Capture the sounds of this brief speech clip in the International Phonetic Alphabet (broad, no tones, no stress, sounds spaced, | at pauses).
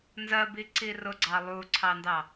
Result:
n z ɜ b i ǀ i r ʊ ɡ͡ǀ ɑ lˠ u ǀʰ ɑ n d ɑ